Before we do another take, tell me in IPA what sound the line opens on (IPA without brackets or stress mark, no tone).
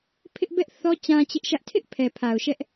pʰ